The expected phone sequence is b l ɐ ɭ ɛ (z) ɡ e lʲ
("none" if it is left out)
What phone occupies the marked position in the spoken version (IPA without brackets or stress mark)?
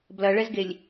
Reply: z